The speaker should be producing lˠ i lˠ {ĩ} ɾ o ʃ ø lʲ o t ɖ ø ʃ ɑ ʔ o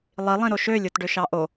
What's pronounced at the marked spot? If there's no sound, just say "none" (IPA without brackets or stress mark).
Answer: ĩ